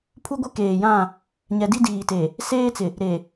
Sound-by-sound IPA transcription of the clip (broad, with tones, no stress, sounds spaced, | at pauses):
pʰ u˦ ɡʷ ɪ˦ k eː˨ j ã˦˨ | ɲ ɛ˨ d i˦ d iː˨ t e˨ | s eː˦ t͡s ɪ˨ | ɾ e˨